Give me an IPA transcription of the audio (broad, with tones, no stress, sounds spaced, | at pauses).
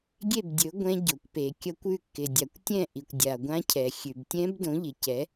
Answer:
ɡʲ e˥˨ b dʲ ɵ˨˥ ɡʷ ɛ̃˦˥ ɟ o˨ kʷ p e˨ kʲ ʌ˦˥ kʷ ʉ˥˨ kː ɪ˨ dʲ a˨ kʷ tʲ ɛ̃˥˨ ʔ i˨ kʷ dʲ a˨ ɡʷ ã˦˥ cʰ ɛ˨ xʲ ʉ˨ b tʲ ɛ̃˦˥ b d õ˨˥ ʎ ɪ˨ c ɛ˨˥